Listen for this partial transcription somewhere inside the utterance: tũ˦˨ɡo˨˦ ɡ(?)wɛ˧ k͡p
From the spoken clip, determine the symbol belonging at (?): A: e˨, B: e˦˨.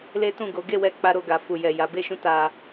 B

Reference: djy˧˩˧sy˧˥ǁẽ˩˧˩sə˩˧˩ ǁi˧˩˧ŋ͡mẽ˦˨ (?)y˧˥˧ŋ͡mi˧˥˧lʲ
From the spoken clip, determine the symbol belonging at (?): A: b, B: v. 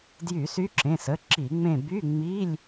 A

